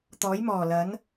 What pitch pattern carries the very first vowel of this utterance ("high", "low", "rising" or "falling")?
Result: rising